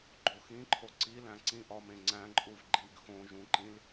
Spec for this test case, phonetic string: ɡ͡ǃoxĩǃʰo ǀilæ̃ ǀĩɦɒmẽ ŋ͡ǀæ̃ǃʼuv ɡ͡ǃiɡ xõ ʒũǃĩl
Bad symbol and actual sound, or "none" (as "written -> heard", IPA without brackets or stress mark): ɦ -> ʔ